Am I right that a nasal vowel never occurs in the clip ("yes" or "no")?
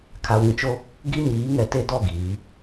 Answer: no